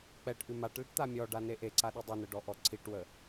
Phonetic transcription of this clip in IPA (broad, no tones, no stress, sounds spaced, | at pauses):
k͡p ɛ ʈ ʔ ʉ m a ʈ l ɪ ʈ t̪ a mʲ ɔ ɖ a n e ʔ e ǀ a ɗ ə dˤ ɛ n ə ɖ ɔ ʔ ɔ ǀʰ i ʈ w ə